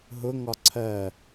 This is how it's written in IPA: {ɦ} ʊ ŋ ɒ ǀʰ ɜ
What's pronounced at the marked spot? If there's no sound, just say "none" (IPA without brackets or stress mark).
ɦ